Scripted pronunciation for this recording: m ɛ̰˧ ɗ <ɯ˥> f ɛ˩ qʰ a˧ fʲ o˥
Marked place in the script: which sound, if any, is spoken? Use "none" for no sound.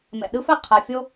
ɯ˥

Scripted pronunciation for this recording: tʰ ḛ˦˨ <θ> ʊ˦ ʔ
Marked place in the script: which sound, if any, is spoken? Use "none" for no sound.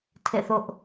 θ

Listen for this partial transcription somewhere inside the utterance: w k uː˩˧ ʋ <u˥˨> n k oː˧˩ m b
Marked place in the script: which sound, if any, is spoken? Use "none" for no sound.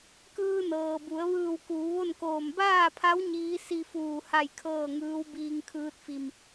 o˥˨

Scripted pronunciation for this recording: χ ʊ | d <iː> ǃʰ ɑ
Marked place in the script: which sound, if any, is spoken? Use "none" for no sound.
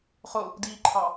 iː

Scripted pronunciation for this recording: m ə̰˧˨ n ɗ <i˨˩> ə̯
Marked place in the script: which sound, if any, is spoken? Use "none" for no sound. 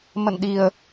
i˨˩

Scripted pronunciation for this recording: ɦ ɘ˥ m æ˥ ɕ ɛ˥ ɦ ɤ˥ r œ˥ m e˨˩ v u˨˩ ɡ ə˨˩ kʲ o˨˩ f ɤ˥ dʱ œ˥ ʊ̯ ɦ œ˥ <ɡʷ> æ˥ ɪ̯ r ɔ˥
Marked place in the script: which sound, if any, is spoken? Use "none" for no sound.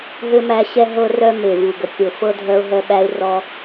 ɓ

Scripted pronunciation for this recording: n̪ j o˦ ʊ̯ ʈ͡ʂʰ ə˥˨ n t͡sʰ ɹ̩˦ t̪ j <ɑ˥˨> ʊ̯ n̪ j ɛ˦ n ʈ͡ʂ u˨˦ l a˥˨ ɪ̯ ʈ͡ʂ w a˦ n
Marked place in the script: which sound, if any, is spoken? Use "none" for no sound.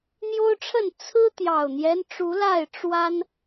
ɑ˨˩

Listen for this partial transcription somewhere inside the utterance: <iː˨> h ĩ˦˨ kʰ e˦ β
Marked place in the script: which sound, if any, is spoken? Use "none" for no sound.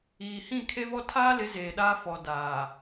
iː˨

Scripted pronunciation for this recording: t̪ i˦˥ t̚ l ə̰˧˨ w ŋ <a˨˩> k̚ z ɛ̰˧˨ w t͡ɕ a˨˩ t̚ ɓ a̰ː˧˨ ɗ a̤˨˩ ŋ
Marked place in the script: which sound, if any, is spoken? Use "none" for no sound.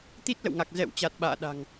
a˨˩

